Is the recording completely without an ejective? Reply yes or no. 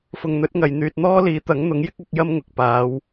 yes